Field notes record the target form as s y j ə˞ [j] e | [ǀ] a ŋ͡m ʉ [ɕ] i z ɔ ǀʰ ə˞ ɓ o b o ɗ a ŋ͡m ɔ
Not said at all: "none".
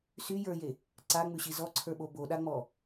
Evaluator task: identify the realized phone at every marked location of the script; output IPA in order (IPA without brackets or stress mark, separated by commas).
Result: j, ǀ, ɕ